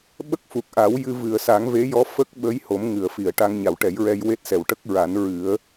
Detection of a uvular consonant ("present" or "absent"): absent